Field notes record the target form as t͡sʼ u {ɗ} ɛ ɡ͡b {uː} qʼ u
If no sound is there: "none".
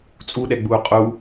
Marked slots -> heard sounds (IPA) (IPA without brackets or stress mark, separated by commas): ɗ, uː